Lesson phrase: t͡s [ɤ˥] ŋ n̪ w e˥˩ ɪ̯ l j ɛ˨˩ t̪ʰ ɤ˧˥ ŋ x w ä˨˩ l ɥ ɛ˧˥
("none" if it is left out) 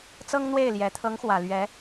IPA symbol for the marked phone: ɤ˥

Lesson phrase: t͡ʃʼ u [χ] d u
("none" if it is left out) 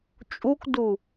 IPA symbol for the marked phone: k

